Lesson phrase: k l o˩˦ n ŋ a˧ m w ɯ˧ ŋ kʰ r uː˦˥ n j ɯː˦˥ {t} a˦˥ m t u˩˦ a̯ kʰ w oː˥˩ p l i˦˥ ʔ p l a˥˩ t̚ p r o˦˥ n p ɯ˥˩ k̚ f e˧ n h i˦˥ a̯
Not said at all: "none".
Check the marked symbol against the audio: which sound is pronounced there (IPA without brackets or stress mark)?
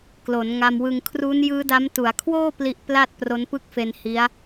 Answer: d